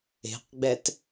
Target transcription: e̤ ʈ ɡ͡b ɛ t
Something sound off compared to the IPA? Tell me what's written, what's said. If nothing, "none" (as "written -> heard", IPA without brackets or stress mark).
ʈ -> q